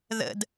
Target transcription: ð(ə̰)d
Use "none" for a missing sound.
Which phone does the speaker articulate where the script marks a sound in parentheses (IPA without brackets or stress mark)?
ə̰